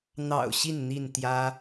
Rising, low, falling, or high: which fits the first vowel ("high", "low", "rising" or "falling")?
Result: low